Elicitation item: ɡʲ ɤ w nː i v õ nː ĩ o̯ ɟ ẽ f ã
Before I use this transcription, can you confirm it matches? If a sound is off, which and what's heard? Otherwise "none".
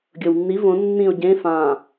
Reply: none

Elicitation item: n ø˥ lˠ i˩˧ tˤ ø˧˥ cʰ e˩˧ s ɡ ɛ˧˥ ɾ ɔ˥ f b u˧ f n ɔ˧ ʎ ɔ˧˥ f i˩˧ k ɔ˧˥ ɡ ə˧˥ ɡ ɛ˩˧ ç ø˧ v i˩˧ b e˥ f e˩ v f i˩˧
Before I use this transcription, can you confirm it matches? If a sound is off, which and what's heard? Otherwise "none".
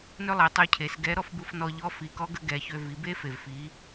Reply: none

